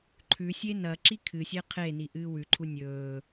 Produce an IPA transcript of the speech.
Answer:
ǃʰ ʉ sʲ e n ɐ ǁ i kʰ ɨ sʲ e qʰ e n i ʔ ɨː w ʉ ǃʰ u nʲ ɵː

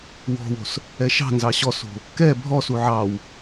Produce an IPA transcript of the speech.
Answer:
w ɔ̤ w o̤ s | ɛ ʃ ɑ̤ n z ɑ ɕ ɔ s o̤ | k ɛ bʱ ɔ s u ʕ ɑ w

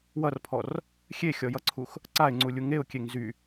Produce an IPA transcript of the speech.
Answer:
w ʌ r pʰ ɔ r | xʲ e xʲ ɔ j ʌ ǀʰ u x | ǀ a ɪ̯ ŋ͡ǀ u lʲ u ŋ e ʊ̯ kʲ e ŋ z y

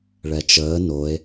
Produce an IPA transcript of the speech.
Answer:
ɭ ɛ t͡ʃ əː n o e̯

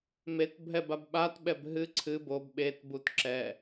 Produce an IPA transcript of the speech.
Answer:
m e t bʱ ɛ b a b ɓ a t ɓ ɛ b ɦ ɨ ǀʰ ɨ b o b ɓ e t b u t ǁ ɛ

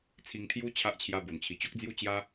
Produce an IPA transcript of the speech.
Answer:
t͡sʰ i˧ ŋ t̪ʰ j u˦ t͡ɕʰ a˦ ʔ t͡ɕʰ j a˧ b o˨˩ n t͡ɕʰ i˨˩ t͡ɕ o˦ k̚ d͡z j u˦ t͡ɕ j a˦

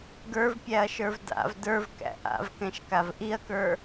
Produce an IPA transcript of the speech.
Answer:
ɡ ə˞ v pʲ æ ɐ̯ ʃ ə˞ v d a̰ v d ə˞ v k æ̰ ʔ a̰ v k ɛ̃ ʃ k a v ʔ i ɐ̯ k ə˞

